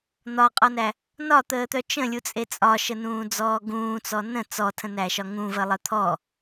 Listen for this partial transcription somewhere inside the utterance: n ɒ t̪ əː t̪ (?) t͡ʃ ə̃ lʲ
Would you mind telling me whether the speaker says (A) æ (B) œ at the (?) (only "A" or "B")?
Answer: B